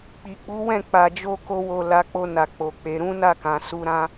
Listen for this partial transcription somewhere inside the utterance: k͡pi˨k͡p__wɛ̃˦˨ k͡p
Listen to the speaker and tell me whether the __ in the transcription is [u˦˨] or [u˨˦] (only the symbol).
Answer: u˨˦